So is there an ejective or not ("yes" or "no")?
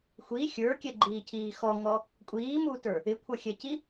yes